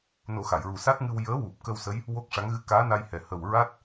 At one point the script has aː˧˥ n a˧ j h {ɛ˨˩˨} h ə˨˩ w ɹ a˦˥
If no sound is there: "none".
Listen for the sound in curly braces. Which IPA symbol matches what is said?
ɛ˨˩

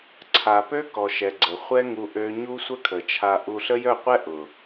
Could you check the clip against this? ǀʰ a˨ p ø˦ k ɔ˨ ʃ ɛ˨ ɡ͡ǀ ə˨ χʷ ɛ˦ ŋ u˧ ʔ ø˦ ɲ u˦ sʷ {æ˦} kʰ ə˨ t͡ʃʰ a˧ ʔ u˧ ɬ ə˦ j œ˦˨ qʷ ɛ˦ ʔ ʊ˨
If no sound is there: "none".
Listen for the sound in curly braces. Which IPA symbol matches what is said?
ə˦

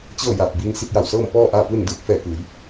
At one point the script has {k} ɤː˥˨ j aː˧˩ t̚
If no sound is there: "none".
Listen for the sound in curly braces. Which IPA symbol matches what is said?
t͡ɕ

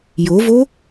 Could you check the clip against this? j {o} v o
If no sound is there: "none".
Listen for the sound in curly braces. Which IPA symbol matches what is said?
o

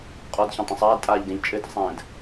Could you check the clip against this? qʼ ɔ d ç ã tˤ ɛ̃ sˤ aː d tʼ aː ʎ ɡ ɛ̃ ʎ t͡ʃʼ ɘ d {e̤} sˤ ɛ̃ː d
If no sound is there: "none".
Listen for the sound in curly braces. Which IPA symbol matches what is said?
ɛ̤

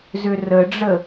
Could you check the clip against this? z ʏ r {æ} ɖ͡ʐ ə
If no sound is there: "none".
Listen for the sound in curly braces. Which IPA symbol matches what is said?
ə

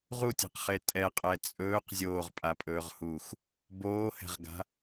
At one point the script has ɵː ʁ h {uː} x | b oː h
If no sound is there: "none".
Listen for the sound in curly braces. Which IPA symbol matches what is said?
uː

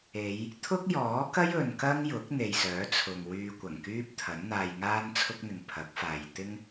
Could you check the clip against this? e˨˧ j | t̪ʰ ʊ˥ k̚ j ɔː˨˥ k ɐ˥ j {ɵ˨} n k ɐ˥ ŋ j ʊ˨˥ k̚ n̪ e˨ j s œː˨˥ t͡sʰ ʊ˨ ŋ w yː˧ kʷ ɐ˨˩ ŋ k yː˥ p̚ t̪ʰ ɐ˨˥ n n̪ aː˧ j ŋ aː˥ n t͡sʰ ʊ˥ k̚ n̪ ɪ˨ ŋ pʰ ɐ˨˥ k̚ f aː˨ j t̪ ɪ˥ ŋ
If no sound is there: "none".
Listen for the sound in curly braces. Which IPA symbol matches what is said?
ɵ˨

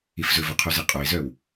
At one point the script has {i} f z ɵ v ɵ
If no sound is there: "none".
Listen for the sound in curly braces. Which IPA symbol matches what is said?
i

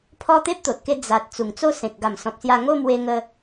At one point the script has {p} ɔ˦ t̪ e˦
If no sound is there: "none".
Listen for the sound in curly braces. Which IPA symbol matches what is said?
pʰ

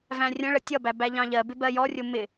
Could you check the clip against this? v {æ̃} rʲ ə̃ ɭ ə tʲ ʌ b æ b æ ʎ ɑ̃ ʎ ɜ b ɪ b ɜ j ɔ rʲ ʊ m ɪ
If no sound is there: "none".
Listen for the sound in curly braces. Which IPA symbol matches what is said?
æ̃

